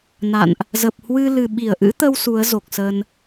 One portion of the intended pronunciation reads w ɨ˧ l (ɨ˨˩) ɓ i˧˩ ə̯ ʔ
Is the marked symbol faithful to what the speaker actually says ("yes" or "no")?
yes